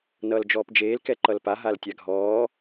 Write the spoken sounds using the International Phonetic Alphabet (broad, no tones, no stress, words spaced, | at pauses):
nʌːld͡ʒɔːpd͡ʒeːl kɛǃʌlpa ɦaltʲaɡʱɔː